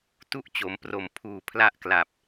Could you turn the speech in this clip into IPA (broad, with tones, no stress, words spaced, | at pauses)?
tu˦˥ʔ t͡ɕo˩˦m pro˨˩m pʰuː˨˩ pʰla˥˩ʔkla˨˩p̚